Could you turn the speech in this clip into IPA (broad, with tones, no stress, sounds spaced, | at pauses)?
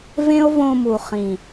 v ẽ˦ o̯ v õ˧ m u˨ χ ĩ˨